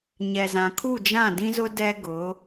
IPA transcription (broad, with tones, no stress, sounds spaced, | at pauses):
ɲ ɛ˨ z ã˨ kʰ u˦˨ d͡ʒ ã˦˨ d ĩ˦ z ʊ˦ d ɛ˦ ɡ ʊ˨˦